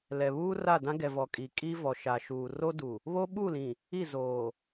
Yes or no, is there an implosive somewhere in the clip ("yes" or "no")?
yes